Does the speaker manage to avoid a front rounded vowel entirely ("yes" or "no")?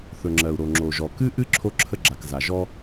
yes